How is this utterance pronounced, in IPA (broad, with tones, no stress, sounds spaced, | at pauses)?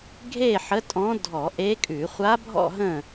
ɡʱ e˥˨ ħ ə˧˥ tʼ ɔ̃˧˥ dʱ ɔ˧˩˧ ʔ e˧˥ kʼ ʉ˧˩˧ χʷ a˧˥ bʱ ɔ̰˥˨ ɦ ə̃˥˨